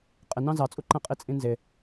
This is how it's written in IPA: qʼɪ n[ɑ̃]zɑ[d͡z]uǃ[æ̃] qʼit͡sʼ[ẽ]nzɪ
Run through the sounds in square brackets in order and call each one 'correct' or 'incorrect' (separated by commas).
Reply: correct, incorrect, correct, incorrect